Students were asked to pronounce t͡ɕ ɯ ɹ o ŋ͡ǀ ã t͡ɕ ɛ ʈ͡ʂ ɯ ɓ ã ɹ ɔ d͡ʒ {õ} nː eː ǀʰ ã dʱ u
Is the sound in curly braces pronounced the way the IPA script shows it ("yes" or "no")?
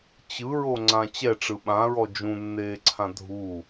no